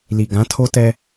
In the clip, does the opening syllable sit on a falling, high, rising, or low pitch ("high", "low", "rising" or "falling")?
low